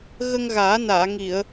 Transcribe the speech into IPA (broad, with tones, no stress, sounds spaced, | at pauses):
ɣ ə˧ ŋ ɣ aː˨˩˦ n aː˨˩˨ ŋ i˨˩˨ ə̯